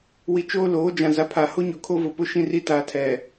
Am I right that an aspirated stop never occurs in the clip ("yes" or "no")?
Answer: no